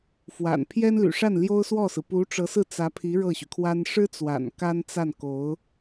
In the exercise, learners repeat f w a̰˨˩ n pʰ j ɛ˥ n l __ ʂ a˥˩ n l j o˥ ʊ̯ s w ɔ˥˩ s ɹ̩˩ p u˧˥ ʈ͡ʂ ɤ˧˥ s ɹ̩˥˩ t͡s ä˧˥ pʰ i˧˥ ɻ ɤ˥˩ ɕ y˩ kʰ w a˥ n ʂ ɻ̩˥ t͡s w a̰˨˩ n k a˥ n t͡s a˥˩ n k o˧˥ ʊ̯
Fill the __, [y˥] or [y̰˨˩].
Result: y̰˨˩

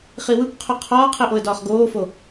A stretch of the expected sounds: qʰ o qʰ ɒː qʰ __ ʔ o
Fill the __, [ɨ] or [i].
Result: i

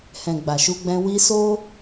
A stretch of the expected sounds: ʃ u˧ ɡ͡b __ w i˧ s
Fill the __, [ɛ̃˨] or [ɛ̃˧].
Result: ɛ̃˧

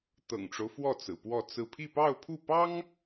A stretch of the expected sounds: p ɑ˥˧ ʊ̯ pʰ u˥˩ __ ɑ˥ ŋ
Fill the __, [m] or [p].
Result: p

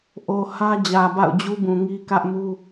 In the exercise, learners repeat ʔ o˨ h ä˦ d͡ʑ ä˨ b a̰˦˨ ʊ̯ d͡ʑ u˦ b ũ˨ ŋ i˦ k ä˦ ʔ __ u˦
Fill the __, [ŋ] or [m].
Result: m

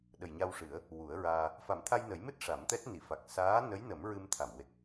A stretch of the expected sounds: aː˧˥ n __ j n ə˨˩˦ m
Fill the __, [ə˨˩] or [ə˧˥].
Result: ə˧˥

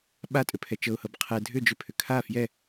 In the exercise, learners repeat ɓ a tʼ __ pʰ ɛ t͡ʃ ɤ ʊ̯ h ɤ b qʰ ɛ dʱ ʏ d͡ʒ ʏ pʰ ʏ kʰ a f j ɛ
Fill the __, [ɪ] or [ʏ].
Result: ʏ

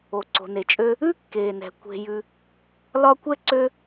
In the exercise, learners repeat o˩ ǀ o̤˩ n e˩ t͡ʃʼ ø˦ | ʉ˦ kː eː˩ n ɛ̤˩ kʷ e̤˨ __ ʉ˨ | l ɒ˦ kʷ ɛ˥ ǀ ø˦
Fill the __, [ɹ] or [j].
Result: j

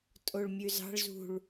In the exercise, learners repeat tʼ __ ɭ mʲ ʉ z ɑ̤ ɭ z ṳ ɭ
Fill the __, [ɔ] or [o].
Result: o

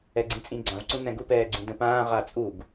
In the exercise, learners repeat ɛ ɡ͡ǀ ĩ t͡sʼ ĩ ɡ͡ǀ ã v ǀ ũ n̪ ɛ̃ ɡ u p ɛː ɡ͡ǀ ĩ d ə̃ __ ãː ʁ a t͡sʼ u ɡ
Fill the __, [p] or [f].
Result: p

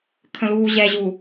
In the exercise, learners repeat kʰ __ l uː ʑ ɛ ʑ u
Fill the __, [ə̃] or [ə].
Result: ə̃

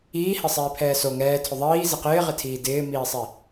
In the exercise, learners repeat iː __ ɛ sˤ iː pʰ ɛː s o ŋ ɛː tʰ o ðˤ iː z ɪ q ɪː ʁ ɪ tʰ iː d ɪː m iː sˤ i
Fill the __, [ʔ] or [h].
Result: h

